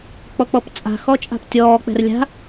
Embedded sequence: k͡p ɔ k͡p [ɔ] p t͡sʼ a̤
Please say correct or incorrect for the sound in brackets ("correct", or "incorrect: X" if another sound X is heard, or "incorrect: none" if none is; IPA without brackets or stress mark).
correct